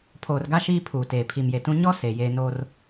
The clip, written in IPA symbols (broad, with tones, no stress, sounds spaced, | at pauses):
pʰ oː˨ r ɡ a˦ ʃ iː˦ pʰ uː˨ t eː˨ pʰ i˨ m j e˨ t ũ˦ ɲ ɔ˦ s e˨ j eː˦ n oː˦ r